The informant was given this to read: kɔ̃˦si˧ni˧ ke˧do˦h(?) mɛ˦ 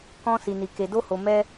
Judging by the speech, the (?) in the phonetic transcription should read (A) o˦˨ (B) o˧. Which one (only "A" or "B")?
B